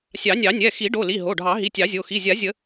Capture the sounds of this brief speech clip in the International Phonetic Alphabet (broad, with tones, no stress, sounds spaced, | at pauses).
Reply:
sʲ ɑ˨˩˦ nʲ ɑ˨˩˦ nʲ ɛ˩˧˩ x i˨˩˦ ɖ o˩˧˩ l i˩˧˩ ɦ o˩˧˩ ɖʱ ɑ˨˩˦ ɦ i˩˧˩ tʲ ɑ˨˩˦ zʲ o˩˧˩ x i˩˧˩ zʲ a˨˩˦ zʲ ə˨˩˦